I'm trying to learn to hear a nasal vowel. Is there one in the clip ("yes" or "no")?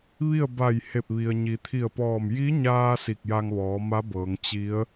no